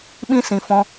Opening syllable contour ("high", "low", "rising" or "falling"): high